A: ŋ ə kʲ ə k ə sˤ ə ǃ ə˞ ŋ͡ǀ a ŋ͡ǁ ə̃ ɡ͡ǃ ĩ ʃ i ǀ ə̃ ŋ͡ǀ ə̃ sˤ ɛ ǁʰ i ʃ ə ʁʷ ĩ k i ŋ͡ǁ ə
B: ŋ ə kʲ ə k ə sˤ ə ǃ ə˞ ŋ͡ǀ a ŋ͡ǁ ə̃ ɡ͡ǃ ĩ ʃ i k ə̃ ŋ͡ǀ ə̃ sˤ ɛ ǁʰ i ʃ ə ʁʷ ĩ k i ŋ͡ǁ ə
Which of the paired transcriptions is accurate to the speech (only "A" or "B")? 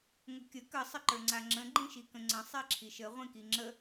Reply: B